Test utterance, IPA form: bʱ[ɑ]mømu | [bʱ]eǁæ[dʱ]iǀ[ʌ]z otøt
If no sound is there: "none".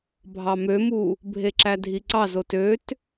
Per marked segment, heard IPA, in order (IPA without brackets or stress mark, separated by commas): ɑ, bʱ, dʱ, ɑ